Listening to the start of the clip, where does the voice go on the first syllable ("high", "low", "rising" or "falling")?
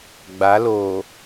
rising